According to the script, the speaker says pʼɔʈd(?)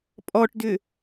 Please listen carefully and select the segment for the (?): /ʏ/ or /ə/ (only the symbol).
ʏ